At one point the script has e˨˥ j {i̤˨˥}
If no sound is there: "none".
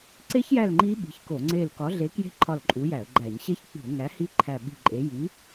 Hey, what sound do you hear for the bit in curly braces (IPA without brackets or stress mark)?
i˨˥